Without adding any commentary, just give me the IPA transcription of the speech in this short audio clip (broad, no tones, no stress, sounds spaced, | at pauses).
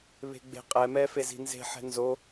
β e̤ ɡ͡b e̤ qʼ ɛ m ɛ f e z i̤ n z e̤ ħ ɛ̤ n z o